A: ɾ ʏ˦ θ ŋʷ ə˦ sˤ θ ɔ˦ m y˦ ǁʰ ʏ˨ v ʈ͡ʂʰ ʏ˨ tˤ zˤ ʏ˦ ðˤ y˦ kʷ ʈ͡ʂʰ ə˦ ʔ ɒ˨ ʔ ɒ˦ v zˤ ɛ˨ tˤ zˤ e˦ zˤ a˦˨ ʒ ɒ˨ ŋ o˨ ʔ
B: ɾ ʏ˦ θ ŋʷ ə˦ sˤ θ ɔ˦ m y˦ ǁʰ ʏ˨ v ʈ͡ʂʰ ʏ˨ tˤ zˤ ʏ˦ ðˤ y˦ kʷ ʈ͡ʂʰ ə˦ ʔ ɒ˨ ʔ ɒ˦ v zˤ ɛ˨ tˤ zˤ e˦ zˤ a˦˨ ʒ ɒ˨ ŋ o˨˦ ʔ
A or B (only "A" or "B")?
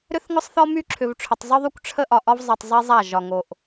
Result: A